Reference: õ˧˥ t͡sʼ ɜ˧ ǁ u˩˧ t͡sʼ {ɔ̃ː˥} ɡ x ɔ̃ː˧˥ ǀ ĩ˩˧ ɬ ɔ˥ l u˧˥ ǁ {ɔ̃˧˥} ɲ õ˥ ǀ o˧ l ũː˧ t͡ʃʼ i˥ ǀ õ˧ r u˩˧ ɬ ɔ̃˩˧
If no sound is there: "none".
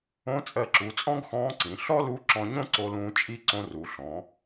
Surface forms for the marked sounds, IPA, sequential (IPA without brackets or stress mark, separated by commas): ɔ̃˥, ɔ̃˧